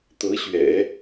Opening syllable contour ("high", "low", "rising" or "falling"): rising